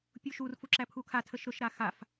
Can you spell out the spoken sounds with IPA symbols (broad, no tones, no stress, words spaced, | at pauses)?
pʲuʃur fuǁæpʰukʰa tʰəʃɾʊʃ ɾaxaf